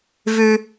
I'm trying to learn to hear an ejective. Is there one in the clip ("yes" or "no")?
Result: no